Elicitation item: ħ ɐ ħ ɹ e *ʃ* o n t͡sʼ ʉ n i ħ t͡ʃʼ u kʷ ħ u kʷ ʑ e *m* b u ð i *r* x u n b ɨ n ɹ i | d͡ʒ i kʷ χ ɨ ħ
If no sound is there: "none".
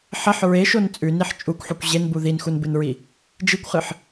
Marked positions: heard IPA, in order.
ʃ, n, n

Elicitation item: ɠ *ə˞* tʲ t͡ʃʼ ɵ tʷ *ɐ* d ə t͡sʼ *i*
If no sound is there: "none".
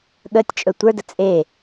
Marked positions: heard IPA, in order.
ə, ə˞, e

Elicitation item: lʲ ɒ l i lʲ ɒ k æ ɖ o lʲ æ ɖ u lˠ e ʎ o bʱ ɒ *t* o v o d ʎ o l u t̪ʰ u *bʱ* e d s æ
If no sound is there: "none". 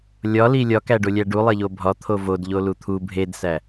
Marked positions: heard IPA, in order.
t̪ʰ, bʱ

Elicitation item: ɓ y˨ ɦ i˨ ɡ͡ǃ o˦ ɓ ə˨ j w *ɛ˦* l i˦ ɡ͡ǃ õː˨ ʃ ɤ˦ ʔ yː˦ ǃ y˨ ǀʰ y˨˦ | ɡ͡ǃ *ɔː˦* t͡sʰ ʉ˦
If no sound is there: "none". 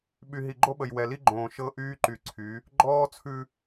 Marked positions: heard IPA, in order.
ɛ˨, ɔː˦

